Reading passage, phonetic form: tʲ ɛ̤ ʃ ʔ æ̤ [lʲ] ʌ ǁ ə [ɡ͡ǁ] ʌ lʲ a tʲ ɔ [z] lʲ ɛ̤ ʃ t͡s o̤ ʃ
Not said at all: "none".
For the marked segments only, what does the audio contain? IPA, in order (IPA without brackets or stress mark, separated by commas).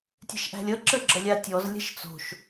lʲ, ɡ͡ǁ, z